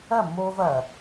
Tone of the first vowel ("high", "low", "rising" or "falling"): falling